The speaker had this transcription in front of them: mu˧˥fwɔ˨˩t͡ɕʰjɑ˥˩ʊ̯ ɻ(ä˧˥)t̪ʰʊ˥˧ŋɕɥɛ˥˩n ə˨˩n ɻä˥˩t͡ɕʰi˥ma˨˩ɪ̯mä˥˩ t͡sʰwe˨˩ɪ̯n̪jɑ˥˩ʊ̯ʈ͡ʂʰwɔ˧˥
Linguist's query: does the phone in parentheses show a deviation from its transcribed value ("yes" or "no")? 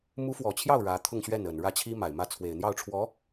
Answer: no